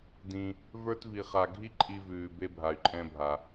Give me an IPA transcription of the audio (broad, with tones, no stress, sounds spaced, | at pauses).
d ĩ˧ | v ə˞˥ t v i˧ χ a˧ ɡʱ i˥ ǃʼ i˧ v ʉː˩ b e˧ bʱ a˩ y̯ ǃʼ ɛ̃˧ bʱ a˩